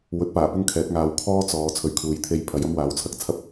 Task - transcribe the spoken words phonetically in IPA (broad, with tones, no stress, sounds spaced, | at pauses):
w ɵ˨˥ t̚ p aː˨˩ p ʊ˥ ŋ kʰ ɛː˨˥ t̚ ŋ aː˨˧ w kʰ ɔː˥ t͡s ɔː˨˧ t͡sʰ ɵ˨ ɥ kʰ uː˨˧ j t̪ʰ e˧ j pʰ ɐ˨˧ j ɐ˥ m w aː˨˥ w t͡sʰ ɐ˨˥ k̚ t͡sʰ ɐ˥ p̚